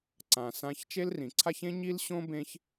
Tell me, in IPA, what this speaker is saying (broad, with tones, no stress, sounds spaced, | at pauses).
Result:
ǀ ã˩ s ã˨ ç t͡ʃ e˦ l r ĩ˩ ǀʰ a˦ ç ẽ˥ ɲ i˥ l ɕ õ˥ b ẽ˦ ç